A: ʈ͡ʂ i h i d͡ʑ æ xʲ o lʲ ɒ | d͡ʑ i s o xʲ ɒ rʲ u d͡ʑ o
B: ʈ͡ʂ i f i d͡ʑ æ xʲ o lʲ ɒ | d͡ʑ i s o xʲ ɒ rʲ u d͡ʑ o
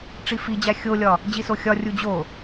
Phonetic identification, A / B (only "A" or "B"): B